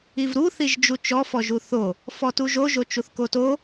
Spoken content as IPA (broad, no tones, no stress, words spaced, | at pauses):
ivɾu θiʒd͡ʒut͡ʃɔ fɔʒuθo | fɔtuʒo ʒot͡ʃuθkoto